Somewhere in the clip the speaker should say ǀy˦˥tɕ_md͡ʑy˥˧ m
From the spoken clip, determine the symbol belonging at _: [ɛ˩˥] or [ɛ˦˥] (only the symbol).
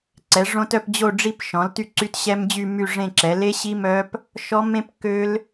ɛ˦˥